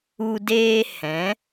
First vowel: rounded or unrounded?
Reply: rounded